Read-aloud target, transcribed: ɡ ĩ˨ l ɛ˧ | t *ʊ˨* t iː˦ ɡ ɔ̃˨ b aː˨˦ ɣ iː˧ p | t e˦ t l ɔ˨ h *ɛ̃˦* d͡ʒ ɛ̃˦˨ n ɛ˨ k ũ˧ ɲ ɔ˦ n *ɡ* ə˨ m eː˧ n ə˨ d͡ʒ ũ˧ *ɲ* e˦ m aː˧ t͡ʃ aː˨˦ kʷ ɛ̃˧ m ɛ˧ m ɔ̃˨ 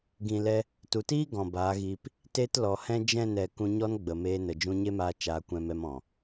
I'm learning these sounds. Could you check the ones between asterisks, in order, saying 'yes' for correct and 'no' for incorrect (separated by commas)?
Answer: no, yes, no, yes